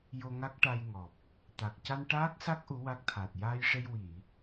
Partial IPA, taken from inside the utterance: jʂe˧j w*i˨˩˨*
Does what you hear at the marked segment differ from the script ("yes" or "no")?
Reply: no